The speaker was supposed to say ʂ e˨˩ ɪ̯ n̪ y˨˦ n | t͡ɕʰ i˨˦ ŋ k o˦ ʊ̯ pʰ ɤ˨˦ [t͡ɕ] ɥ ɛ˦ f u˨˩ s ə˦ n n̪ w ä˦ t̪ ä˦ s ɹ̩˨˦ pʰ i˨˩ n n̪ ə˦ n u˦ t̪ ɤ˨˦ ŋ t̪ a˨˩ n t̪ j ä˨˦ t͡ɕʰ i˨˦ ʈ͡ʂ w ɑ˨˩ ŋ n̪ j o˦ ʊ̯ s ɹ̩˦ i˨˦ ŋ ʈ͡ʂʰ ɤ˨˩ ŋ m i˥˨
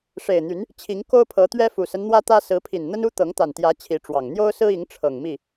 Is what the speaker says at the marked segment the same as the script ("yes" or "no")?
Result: no